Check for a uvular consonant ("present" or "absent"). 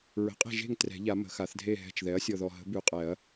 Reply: present